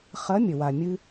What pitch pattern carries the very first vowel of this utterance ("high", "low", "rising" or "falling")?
rising